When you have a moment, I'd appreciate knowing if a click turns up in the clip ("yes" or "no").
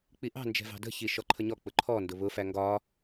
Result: yes